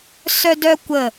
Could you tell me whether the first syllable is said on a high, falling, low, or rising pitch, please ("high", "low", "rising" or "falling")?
high